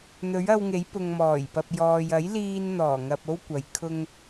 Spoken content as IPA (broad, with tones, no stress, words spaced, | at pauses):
n̪ɵ˨˥ɥɐ˧wŋe˨˥j pʊ˨ŋ mɔː˨˩jpɐ˨p̚jɔː˨j ɐ˨˥jliː˧nn̪ɔː˨˩ŋɐ˨p̚ o˥wkʷɐ˨j kʰʊ˧ŋ